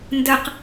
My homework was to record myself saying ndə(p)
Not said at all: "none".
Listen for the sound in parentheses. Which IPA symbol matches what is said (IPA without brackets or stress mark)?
q